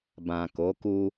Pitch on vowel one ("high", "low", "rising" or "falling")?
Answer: low